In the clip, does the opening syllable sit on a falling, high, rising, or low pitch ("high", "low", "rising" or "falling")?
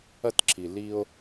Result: high